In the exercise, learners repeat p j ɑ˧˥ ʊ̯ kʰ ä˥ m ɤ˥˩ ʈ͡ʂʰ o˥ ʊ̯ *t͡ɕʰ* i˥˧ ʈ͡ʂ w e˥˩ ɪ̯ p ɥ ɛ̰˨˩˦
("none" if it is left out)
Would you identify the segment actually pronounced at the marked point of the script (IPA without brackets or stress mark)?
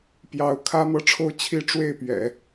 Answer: t͡ɕʰ